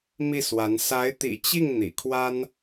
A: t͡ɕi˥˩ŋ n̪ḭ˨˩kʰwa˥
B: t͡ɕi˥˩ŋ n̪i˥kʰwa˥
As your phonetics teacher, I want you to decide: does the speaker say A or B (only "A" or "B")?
A